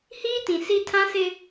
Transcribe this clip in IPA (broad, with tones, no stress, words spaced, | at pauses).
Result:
hiː˦tĩ˨ si˦ tʰã˦sɪ˦